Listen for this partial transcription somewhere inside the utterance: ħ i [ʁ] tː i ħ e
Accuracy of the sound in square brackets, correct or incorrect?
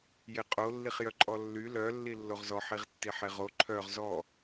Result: correct